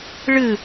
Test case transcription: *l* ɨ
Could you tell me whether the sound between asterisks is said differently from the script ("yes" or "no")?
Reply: yes